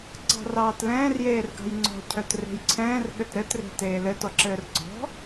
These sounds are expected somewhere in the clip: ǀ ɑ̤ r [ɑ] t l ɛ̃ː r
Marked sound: incorrect: ɑː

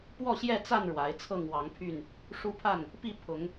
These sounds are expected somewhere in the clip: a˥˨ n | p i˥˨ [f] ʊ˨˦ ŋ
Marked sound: incorrect: pʰ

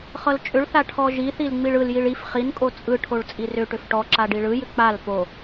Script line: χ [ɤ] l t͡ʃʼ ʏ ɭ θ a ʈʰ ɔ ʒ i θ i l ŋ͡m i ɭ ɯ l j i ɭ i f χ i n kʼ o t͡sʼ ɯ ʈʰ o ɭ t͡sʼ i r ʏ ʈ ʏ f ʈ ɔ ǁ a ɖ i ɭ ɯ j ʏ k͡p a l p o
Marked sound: correct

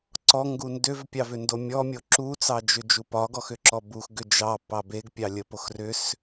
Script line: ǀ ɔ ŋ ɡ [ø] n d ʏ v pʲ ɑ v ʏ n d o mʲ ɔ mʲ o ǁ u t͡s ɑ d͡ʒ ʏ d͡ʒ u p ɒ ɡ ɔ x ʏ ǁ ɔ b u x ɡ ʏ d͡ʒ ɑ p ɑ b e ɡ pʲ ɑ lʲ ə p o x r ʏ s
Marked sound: incorrect: u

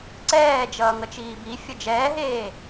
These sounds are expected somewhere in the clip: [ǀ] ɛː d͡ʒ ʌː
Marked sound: correct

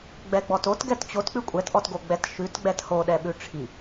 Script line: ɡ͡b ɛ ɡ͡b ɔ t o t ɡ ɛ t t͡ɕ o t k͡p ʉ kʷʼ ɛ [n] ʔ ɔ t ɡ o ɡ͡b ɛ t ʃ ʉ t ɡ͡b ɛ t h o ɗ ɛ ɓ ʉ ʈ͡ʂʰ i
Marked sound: incorrect: t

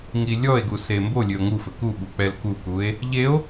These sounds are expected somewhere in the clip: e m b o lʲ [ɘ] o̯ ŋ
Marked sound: correct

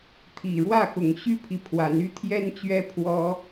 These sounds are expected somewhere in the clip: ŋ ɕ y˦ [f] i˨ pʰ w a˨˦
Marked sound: incorrect: pʰ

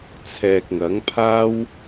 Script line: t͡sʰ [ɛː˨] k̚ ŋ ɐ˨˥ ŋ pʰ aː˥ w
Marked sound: correct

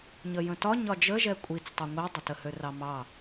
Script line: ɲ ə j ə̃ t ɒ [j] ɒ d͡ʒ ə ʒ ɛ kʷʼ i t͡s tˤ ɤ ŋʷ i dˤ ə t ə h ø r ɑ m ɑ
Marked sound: incorrect: ɲ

